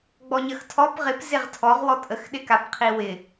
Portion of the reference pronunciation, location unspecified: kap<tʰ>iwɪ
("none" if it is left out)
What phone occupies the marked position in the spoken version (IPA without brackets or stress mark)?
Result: qʰ